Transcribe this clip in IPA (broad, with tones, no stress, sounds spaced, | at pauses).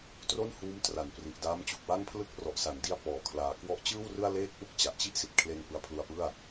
t r o˥˩ n h uː˦˥ m t r a˩˦ n p r i˨˩ ʔ d aː˦˥ m t͡ɕ u˨˩ k̚ w a˥˩ ŋ pʰ l ɯ˥˩ k̚ r ɔ˨˩ ʔ s a˩˦ n d i˧ a̯ p ɔː˨˩ kʰ l aː˨˩ k w ɔ˦˥ ʔ t͡ɕ ɯː˥˩ w r ɯ˥˩ a̯ l eː˥˩ k̚ ʔ u˥˩ k̚ t͡ɕ a˨˩ ʔ t͡ɕ i˥˩ ʔ s i˨˩ t̚ kʰ l e˧ n p ɯ˦˥ a̯ pʰ l u˧ a̯ p ɯ˥˩ a̯